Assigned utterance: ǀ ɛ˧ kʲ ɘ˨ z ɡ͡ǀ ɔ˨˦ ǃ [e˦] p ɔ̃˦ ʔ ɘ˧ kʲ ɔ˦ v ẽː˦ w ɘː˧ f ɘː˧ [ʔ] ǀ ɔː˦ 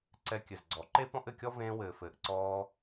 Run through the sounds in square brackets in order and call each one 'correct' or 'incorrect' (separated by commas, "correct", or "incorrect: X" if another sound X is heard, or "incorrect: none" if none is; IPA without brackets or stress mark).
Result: correct, correct